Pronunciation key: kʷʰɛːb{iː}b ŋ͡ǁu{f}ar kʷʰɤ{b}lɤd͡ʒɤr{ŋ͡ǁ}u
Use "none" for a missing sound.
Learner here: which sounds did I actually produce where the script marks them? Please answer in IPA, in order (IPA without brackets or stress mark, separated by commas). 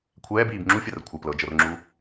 iː, fʲ, p, ŋ͡ǁ